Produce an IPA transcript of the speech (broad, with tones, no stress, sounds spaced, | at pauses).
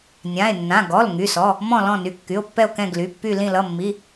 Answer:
nʲ ã˩˧˩ e̯ nː ã˩˧˩ ɡ ɔ˩˧˩ l ŋ y˩˧˩ s ɔ˩˧˩ | m ɔ̃˦˨ l ɔ̃˦˨ n y˩˧˩ kː y˩˧˩ o̯ pː ɛ˦˨ o̯ k ɛ̃˦˨ ɡ l y˩˧˩ pː y˦˨ l ĩ˦˨ l ʌ˩˧˩ mː i˩˧˩